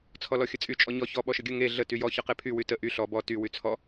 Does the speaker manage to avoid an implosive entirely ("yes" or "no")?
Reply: no